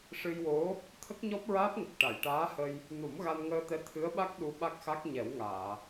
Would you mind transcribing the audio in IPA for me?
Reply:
ʂ ɨ˧ j w o˧˥ | t̪ʰ ə˦˥ k̚ ɲ ɔ˦˥ p̚ ɹ aː˦˥ p̚ ŋ ə˨˩ k̚ ʈ a˨˩˨ j ʈ aː˧˥ h ə˧ j | n u˨˩˦ m ɣ a˧ n ŋ əː˧ t̪ ɛ˧˥ t̪ʰ ɨ˧˥ ə̯ ɓ a˦˥ k̚ ɗ u˧ ɓ a˦˥ k̚ x a˦˥ k̚ ɲ ɛ˨˩˦ w ŋ aː˨˩˨

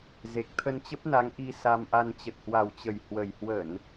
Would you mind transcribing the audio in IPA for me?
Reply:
z e˨˩ k̚ t̪ʰ ə˧ n t͡ɕ ə˦˥ p̚ n a˨˦ ŋ ʔ i˧ s a˧ m ʔ a˧ n t͡ɕ ə˨˩ t̚ h w a˨˩ w t͡ɕ ə˨˩ j h w ə˨˩ j h w ə˧˩˨ n

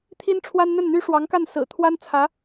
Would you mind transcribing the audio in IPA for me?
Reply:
t̪ʰ i˥ n ʈ͡ʂʰ w a˥ n n̪ ə˥˩ n n̪ y˥ ʂ w ɑ˧˥ ŋ k a˥˩ n s ɹ̩˨˩ t̪ʰ w a˥ n t͡sʰ ä˧˥

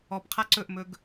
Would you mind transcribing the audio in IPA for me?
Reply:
ɔ p qʰ a ǀ ɵ ʔ m ɵ ɡ

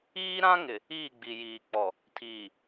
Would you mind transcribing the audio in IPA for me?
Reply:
iː˦ ɾ ã˦ ŋ ɪ˨ | iː˦˨ ɡ͡b i˨ j iː˨ k͡p ɔ˨ | tʰ iː˨

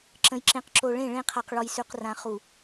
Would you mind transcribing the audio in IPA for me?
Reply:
ǁ ə̃˨ j ǁ ẽ˨ q ǁ o˨ ɭ ẽ˦˨ ɭ ẽ˦ qʰ a˨ q ɭ ɔ˨ j s ʉ˨ q r ã˨ χ u˨

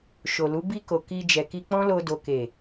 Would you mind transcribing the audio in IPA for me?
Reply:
ʃ o˨ l u˨˦ b i˧ k o˨ k i˧ d͡ʒ ɛ˨ k i˧ k͡p ɔ̃˦ l o˧ d o˨ k e˨

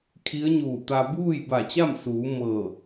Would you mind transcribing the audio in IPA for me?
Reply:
kʰ i˧˥ ə̯ ɲ uː˧˩ t̪ a˧ b uː˥˨ j b a˧˩ t͡ɕ a˥˨ m s uː˩˧ m ɤː˧˩

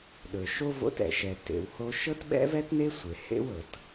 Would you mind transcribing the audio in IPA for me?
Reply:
ɗ ɵ˧ ʃ o˥ v o̰˥ t ɛ̰˧ ʃ ɛ˧ t ḛ˧ w h o˥ ʃ ɤ˥ t ɓ ɛ̰˥ v ɛ˥ t n e˥ sʷ e˧ h ḛ˥ w ɤ˧ t

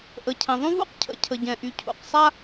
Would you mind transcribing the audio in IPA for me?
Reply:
ʔ ə˩ cʰ ɛ̃˩ ðˤ ũ˥ v ṵ˥ q cʰ ə̰˩ cʰ ə˩ ɟ ɛ̃˩ ʔ y˩ cʰ ṵ˩ q sˤ a˥

